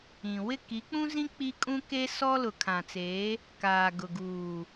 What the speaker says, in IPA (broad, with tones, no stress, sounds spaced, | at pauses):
ĩ˨ w ɪ˦˨ k i˨˦ k͡p ũ˦ z ĩ˦ k͡p i˦ kʼ ũ˦ k e˦ s ɔ˦ l ʊ˨ kʰ ã˨ t͡s eː˨˦ | k aː˨ ɡ ʊ˨ ɡ uː˨